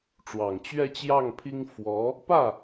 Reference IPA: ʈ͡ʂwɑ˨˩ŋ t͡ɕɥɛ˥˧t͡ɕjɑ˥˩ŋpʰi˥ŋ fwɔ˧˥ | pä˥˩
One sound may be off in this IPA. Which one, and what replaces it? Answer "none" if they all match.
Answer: none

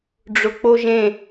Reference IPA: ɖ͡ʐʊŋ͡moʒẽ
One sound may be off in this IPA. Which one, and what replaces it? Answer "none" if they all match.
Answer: ŋ͡m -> k͡p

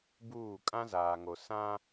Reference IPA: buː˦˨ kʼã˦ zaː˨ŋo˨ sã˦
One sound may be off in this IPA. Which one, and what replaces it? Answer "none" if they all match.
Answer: none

